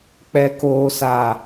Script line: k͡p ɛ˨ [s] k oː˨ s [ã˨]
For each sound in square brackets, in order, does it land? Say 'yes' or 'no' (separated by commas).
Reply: no, no